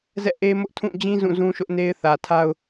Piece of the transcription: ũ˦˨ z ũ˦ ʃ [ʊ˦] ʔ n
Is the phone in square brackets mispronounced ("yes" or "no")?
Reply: no